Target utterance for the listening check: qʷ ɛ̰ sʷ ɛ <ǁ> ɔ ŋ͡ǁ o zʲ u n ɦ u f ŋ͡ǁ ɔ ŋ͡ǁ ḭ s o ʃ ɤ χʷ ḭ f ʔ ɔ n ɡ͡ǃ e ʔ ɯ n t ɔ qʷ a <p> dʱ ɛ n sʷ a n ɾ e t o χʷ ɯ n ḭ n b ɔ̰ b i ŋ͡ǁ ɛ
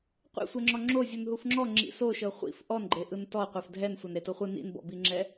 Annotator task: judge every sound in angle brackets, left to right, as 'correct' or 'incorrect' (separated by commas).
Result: incorrect, incorrect